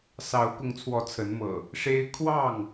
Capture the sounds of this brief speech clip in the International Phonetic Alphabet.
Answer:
sɑ˨˦ʊ̯kʊ˨˦ŋt͡sʰwɔ˨˦ t͡sʰə˨˦nmɤ̰˨˩ | ʂe˦ɪ̯ kʰwɑ˥˨ŋ

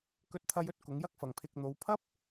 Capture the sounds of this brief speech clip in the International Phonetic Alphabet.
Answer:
kɵ˧t̚t̪ʰɐ˧jɵ˥t̚ kʊ˨˧ŋjɐ˥k̚fɐ˨ŋpʰɪ˧k̚ n̪o˨˧wpʰɐ˥p̚

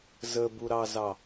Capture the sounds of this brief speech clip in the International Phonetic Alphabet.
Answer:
zəbuɾɑzɑ

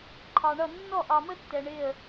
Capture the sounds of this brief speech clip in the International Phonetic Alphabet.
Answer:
ǃʰɑ˨ɳʌ˦˨ nːɔ˦˨ʔɑ˨mə˦tːɛ˨ ɳɪ˦˨ə̯

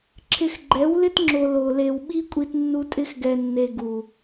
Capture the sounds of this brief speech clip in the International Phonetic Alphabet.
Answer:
ǁʰɪ˧x ɡ͡ǃɛ˨˦wlɪ˦tŋ͡ǁo˨ lo˨le˨w ɓi˦kʷʼi˧tnːu˧ tʼɪ˧xɡɛ˨nːe˨ ɡu˨

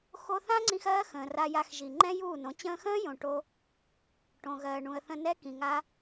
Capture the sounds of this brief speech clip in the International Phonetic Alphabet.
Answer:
xo˧θã˦ŋ͡ǀĩ˧x ɜː˦xə̃ː˨ra˧ ja˧xʒi˨ ŋ͡ǃɛ̃˦juː˦˨nõ˨˦ t͡ɕə̃ː˧xə̃ː˦ jõ˨ ʈo˦ | ʈõ˨ɣɜː˨ ɳũ˨ə̯θə̃˧nɛ˦ kĩ˨ŋa˦

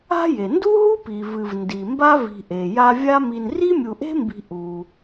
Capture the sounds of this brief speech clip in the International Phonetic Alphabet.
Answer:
a̤˦je˩ ndu˥ɦu˥pi˩ vɨ˨vndi˩ mba˥vi̤˨ʔe˩ja˦ vʲa˥ mi˨n ri˥mʲu˨ʔe̤˥mbi̤˨ ʔu˩

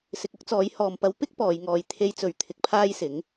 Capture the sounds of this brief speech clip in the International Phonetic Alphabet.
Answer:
sɪ˧k̚ ʊ˥k̚t͡sɔː˨˧jhɔː˨mpɐ˧w pɪ˥k̚ pɔː˨˧jŋɔː˧j t̪ʰe˧jt͡sɵ˨ɥ t̪ʰɪ˧k̚pʰaː˥jsɪ˨˥ŋ

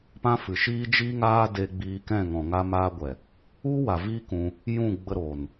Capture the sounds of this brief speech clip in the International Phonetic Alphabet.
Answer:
pã˦fɨ˨ʃiː˦ d͡ʒiː˦ŋaː˦deː˧ ɡ͡biː˧kɛ̃˦˨ŋɔ̃˨ ŋa˧maː˧ɡʷɛ˨ | u˦wa˨ viː˦ kũ˧ | jũ˦˨ɡ͡bə˧ ɾoː˨n

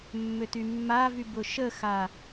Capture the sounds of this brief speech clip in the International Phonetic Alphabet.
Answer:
mːøtymːavy bʊʃəxa

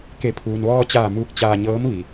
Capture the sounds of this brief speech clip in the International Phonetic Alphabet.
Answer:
ke˩˧pʰuː˩nʋɔː˧t͡ɕaː˧˩ muː˧k̚t͡ɕaː˧ɲɤː˧˥m ʋi˩

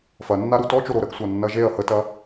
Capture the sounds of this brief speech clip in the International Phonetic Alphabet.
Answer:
fɐnːaɾu tɔt͡ʃoɾo ɾəɡsʷanːɐ ʒeɐ̯ hətɐ

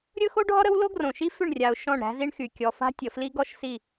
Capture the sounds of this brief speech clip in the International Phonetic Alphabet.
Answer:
ɾʲɵ˦xo˦ɖʱɔ˦ɾə˦w lo˦ɡrõ˨ ʃi˦ fʏ˦˨ɳrʲa˨ʊ̯ ʃɔ̃˦˨ɳɾæ̤˦zi˦ɳxy˨ kʲɔ˨fa̤˦tʲə˨fli˦ ɡɔ˦ʃsi˦˨

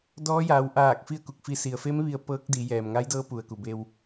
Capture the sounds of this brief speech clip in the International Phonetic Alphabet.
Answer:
dɔː˧˥jaː˩˧w ʔaː˧˩k̚ fi˥˨ə̯ku˧˩k̚fi˧ si˩ə̯fe˧˥m ʋi˧ə̯pɤː˧˥k̚di˩˧ jɛː˩mŋa˧˥jdɤː˧˥ pu˩ə̯ku˩be˧w

